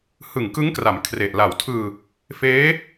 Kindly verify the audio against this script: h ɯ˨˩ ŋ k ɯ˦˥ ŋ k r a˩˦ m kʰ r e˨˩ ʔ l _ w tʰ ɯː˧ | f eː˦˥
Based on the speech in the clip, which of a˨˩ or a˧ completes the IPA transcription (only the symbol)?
a˨˩